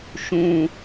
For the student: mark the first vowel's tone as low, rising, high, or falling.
low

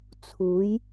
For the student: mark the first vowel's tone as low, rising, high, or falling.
rising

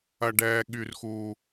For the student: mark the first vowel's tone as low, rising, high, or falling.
high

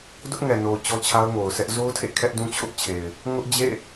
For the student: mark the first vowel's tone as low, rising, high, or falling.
high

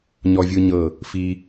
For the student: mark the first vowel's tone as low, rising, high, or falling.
high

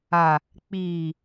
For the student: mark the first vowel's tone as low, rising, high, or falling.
low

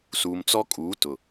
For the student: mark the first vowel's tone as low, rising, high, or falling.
low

